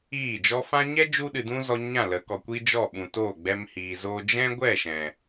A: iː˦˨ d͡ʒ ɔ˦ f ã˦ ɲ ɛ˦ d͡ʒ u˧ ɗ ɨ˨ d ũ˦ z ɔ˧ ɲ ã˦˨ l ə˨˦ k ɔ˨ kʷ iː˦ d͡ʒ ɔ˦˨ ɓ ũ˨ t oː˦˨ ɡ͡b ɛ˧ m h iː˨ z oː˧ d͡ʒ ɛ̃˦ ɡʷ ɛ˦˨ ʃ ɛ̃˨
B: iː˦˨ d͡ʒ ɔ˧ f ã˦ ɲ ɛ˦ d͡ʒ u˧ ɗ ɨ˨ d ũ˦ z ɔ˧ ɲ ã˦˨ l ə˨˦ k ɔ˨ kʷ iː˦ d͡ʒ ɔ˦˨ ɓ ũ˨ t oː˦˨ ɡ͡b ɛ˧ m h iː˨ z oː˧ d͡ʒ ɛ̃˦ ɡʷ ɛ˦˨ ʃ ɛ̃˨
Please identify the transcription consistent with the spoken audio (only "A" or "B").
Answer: A